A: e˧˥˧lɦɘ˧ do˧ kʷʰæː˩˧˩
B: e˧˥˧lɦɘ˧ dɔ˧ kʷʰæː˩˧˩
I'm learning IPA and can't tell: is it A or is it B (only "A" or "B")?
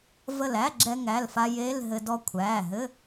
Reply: B